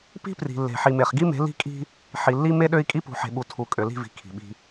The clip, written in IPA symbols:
pi̤˦pri̤˨lːe̤˨ ħi˨me˨χɡi˦me̤˨˦ li̤˦kʼi̤˦ | ħi˨lːi˦ me˦ɗø˦i̯ kʼi˦pṳ˨ħe̤˨ɓu˨ tʰu˨ kʼø˨li̤˦˨vi̤˨ kʰi̤˨ɓi̤˦

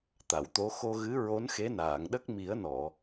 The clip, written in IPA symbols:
t̪a˨˩˨wt̪o˧˥ xo˧ɣɨ˧˥ ɹo˧˥nxe˧˥naː˨˩˨ŋɗə˦˥k̚ mi˨˩˦ə̯nɔ˨˩˨

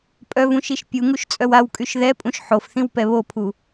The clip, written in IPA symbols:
pʼœvũʃiʃ pʲuŋuʃt͡sʼœw awkʼyʃ ðɛpʼũʃ ħofθĩwpɛ βopʰu

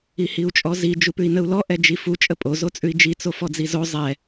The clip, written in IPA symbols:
ihiu̯t͡ʃʼɔzi d͡ʒupʉi̯nəu̯lɔ ʔɛd͡ʒifu t͡ʃʼəpʼo zot͡sʼʉi̯d͡ʒi t͡sofɔd͡zizo zˤɛ

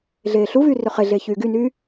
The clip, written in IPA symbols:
ɮeːɬuvyː røχeɮeː çyːɡynyː

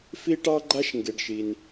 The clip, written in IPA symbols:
fi˥ʈɑ˥ɡ͡ǃa˥ʃ ŋɡe˩ɖʃi˩n

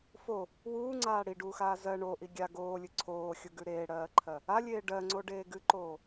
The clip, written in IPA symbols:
fo | wuːŋ͡ǀaː ɽiɖuːxaː zɜ ɳoʔi ɡʲa ɡoːlʲɨ ǀʰoːxʲuɡʉ ɾeːɽɜːǃʰɜ | alʲeː ɖɜŋ͡ǀoɖeː ɡɨǃoː

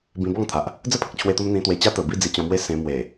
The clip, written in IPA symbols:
bĩ˧bɔ˥˧ŋt̪ʰa˨ʔ | d͡zə˥˧pʰə˨k̚t͡ɕʰwe˧t̪o˧m n̪ĩ˧t̪we˧t͡ɕa˦ t̪ə˨˩bi˥˧ d͡zi˧t͡ɕɔ̃˧mwe˦ sẽ˧ mwe˨˩

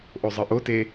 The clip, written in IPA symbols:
ʔozˤɯʔote

